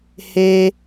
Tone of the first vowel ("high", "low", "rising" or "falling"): high